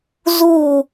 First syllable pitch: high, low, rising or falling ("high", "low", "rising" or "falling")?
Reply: falling